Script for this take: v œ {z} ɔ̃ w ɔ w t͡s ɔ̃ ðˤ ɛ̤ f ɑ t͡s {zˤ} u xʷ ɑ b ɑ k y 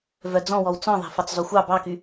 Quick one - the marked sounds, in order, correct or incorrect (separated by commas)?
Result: incorrect, correct